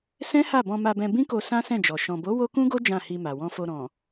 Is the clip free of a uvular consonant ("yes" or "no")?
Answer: yes